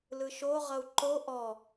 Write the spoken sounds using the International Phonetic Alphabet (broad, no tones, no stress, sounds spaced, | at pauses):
l ɯ ʃ o ʁ ʌ u̯ ǃ o ʔ ɔ